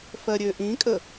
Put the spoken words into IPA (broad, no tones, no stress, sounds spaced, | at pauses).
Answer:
f ɜ ɾʲ ø ʔ ĩ kʼ ə